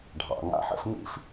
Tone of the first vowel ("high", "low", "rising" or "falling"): low